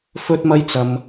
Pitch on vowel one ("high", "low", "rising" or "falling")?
high